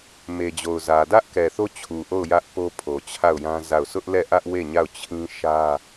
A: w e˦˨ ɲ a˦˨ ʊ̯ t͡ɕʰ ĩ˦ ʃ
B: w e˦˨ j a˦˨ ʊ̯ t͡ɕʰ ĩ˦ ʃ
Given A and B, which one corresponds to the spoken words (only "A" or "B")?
A